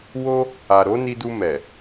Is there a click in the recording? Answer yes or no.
no